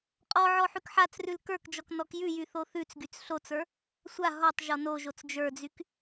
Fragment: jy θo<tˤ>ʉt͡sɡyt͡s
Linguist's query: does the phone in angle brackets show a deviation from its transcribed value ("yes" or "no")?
yes